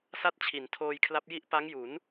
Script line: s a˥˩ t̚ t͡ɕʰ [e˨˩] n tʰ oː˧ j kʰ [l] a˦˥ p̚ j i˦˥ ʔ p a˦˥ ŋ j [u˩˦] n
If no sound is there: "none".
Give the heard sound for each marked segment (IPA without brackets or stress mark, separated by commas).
i˨˩, l, u˩˦